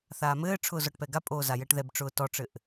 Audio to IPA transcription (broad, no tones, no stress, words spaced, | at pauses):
θaːmɘː ʈ͡ʂʰʊːzɔʈpɛɡa pʼoːzajɛʈðɛb ʈ͡ʂʊːtɔʈ͡ʂɘʔ